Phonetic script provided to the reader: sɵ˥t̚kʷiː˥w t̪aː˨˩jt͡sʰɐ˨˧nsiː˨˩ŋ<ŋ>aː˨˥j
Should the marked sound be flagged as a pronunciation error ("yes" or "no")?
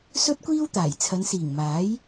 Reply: yes